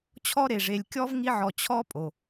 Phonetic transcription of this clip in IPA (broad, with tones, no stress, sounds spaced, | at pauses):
t͡ɕʰ ɔ˦ ɾ e˩ ʐ e˨ lʲ kʲ ɔ˥ v ŋ i˦ ʕ ɔ˨ t͡ɕʰ ɔ˦ pʼ o˩